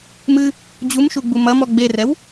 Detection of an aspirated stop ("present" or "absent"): absent